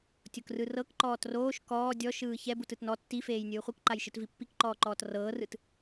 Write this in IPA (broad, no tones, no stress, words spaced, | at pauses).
tʲokrɯrɤk ǃɔːtroːʃ kɔː dʲɔʃɯː çɛbut ɯtnɔ tːifeːj nʲɯːχʷɯkǃajʃɯt vipːikǃɔːǃɔːt rɤːrɯt